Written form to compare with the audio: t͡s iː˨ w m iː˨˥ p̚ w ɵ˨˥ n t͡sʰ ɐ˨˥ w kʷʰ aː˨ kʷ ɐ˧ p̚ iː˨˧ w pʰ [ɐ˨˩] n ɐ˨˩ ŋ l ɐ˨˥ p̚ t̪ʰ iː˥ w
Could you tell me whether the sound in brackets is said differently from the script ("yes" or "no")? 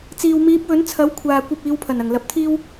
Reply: no